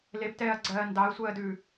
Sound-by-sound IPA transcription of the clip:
l e p t ɛː ɐ̯ ɡ͡ǀ ɜː n d ɑ ɐ̯ sʷ ɜː d ʉ

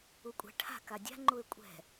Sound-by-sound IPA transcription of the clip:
u kʷʼ ɛ̤ ʈʰ a̤ k a dʲ a̤ ŋ͡ǃ u e̯ kʷʼ ɛ̤

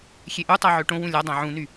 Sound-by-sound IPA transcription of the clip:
xʲ e ʔ u tˤ a ʕ ø ʈ õ w ũ lʲ a dˤ ã ʕ ũ n y

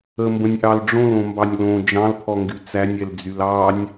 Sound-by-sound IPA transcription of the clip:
ə m b ə̃ nʲ ʔ ɑ l ɖ͡ʐ õ l õ m b ɑ nʲ l õ d͡ʒ ɑ̃ l pʰ ɔ ŋ ɡ y t͡s æ nʲ ɛ l d͡z y l ɑ nʲ

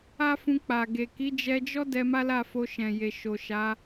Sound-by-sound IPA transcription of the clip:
a˦ f ũ˧ k͡p a˨ ɡ e˨ k i˨˦ d͡ʒ ɛ˧ d͡ʒ ɔ˦ d ɛ˧ m a˦ l a˦˨ f o˧ ʃ ɛ̃˨ j e˨ ʃ o˨ ʃ a˨˦

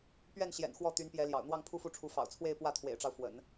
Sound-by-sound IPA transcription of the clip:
p ɥ ɛ˥˩ n ɕ j ɛ̰˨˩ n x w ɔ˥˩ t̪ y˧˥ n p j ɛ˧˥ l j ɑ̰˨˩ ʊ̯ n̪ w ɑ˥˧ ŋ pʰ u˥˧ f u˥˩ ʈ͡ʂʰ u˧˥ f ɑ̰˨˩ ʊ̯ t͡sʰ w e˥˧ ɪ̯ p w ä˥˩ t̪ʰ w ḛ˨˩ ɪ̯ ʈ͡ʂ ɑ˦ ʊ̯ f w ə̰˨˩˦ n

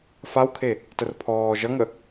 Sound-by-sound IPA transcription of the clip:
f a w kʰ e | t ə r pʰ ɔː ʒ ʌ ŋ ə

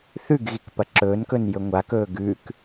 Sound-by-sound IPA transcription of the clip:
θ ʉ ɡ ɣ i k p ɐ ǁ ɵː n k ɵ n j ɵ ŋʷ a k ɵː ɡ ʉ k

